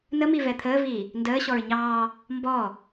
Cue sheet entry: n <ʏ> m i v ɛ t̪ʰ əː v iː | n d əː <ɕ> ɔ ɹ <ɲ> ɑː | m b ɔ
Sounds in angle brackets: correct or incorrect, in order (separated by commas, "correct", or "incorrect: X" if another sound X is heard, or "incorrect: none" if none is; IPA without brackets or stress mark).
incorrect: ə, correct, correct